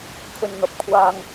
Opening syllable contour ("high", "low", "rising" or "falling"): low